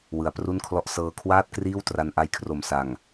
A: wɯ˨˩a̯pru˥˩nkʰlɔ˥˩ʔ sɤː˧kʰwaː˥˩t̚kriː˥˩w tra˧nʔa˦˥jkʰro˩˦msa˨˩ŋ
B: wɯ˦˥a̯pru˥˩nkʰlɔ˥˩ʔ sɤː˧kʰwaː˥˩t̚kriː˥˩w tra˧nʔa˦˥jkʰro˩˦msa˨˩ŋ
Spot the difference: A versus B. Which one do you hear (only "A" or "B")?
A